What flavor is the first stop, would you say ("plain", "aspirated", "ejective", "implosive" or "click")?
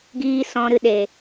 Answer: plain